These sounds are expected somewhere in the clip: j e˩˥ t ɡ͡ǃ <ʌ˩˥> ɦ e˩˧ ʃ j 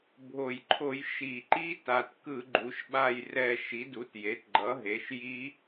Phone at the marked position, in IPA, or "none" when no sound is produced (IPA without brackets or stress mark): ʌ˩˥